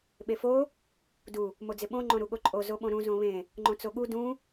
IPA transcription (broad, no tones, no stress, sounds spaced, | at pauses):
ɓ e f o | d u | m o d͡z ɪ ɓ õ ŋ͡ǃ õ ɾ u ɠ o ǃʼ o z o ɓ õ ɾ ũ z õ β ẽ | ŋ͡ǃ õ t͡s o ɠ u d ũ